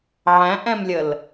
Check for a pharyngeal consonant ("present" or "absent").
present